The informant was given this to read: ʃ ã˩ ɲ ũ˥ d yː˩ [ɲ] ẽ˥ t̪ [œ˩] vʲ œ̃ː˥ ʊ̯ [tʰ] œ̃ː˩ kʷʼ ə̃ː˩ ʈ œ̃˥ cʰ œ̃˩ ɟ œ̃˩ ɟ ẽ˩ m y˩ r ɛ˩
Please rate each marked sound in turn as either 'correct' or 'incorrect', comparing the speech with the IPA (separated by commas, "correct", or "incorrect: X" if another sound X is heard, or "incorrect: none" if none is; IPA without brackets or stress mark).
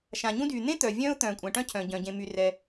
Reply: incorrect: n̪, correct, incorrect: t̪